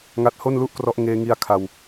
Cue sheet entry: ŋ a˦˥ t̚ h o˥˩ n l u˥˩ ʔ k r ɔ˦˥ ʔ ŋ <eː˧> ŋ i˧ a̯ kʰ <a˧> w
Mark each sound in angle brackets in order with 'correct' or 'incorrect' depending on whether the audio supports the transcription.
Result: correct, correct

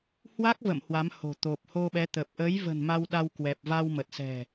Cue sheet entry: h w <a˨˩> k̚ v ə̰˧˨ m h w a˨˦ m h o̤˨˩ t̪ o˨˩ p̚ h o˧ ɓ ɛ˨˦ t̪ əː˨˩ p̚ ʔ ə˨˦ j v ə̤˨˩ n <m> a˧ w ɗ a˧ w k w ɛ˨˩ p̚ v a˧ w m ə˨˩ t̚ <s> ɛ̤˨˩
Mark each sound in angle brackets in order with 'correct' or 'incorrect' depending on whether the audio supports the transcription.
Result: incorrect, correct, correct

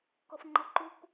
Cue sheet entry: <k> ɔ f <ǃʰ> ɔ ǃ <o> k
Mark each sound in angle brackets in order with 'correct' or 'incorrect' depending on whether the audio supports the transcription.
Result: correct, incorrect, incorrect

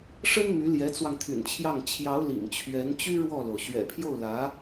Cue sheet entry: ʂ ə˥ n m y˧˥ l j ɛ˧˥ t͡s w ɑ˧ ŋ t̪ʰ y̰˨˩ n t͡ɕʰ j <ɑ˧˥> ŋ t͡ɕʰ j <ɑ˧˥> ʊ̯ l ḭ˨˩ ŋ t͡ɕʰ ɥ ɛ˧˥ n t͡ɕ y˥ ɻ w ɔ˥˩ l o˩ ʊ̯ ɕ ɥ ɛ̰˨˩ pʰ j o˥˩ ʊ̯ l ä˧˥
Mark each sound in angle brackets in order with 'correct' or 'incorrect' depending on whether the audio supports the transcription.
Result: incorrect, correct

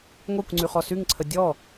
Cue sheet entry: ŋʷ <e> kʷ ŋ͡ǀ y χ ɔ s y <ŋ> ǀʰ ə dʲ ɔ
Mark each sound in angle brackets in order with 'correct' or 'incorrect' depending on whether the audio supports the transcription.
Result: correct, correct

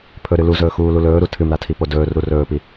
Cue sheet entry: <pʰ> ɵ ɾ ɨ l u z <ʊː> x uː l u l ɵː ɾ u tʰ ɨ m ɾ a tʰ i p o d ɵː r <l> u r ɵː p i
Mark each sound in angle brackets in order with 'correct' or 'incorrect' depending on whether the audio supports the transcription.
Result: correct, incorrect, incorrect

